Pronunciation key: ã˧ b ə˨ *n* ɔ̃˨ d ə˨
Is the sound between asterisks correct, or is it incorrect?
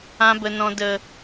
correct